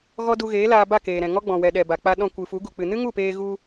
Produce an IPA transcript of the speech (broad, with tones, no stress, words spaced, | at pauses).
ɣɔ˦ du˧ɣeː˨˦laː˧ ba˦˨keː˨ɾɛ̃˨ ŋɔ˦ɡ͡bɔ̃˨wɛ˨ ɗɛ˨ba˨k͡pa˧ɗɔ̃˧ kʷɨ˨fu˨˦ ɡu˨k͡pɨ˨ nɨ˦ŋu˦˨peː˧ɣu˧